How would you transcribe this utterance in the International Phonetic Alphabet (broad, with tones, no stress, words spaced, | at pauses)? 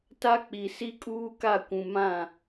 ta˦k͡pi˨ si˦kʼuː˦ka˦˨kʷũ˨ mã˦˨